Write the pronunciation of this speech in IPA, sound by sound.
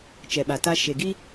t͡ʃ ɛ˨ ɓ a˨ t a˦ ʃ e˨ ɡ i˦

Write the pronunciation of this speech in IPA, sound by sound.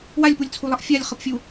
w a lʲ p u lʲ t͡sʰ u lˠ ʌ ʔ fʲ a lʲ χ ʌ p fʲ u

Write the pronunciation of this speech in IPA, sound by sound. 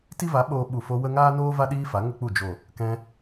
t i˦ v a˨˦ ɓ oː˧ ɓ u˨ f o˧ w ə˦ ŋ aː˦ n oː˦ v a˦ ɗ iː˦ f a˨˦ ŋ ə˦ k͡p u˦˨ d͡ʒ o˨ | k ɛ̃˧

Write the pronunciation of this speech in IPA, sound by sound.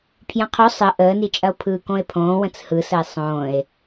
pʰ j ɐ̃ qʰ o sˤ ə ʔ əː n i t͡ʃʼ ɐ o̯ pʰ ɯː k õ e̯ pʰ õː w ə̃ t͡s h ɯ s ə e̯ sˤ õː e̯

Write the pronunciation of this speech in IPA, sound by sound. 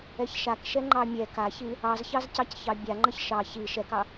ɛ ç ʃ a k ʃ ɛ ŋ͡ǃ ɑ mʲ ɛ k a ç i | ɑ z ç ɑ z c ɑ c ç ɑ bʲ a ŋ͡ǃ ə ç ʃ ɑ ç i ʃ ɛ k ɑ

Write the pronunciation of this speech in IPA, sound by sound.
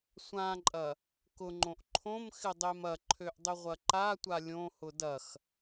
sʷ ã ǃʼ ɐ | k ʊ ŋ͡ǃ õ ʔ ǃʰ õ m x ɪ dˤ e m ɐ ǃʰ ø ʔ dˤ ʏ ʁʷ ɐ ǃ a tʷ a lʲ õ h ʊ d ɐ x

